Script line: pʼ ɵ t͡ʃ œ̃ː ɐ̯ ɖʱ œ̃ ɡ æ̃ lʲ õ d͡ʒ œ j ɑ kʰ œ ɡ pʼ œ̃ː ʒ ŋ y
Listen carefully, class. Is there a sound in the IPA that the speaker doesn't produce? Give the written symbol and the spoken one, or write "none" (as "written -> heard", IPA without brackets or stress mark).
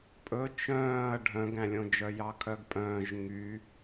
none